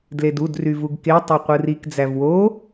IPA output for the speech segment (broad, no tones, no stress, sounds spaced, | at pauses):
d l e d u d r y v u ɡ k e tˤ e qʷ ɯ r i k d͡z æ v w o